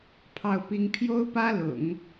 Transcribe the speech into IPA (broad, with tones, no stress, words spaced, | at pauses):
pʰɑ˥˩ʊ̯pi˥ŋ pʰjo˥ʊ̯pä˥lʊ̰˨˩˦ŋ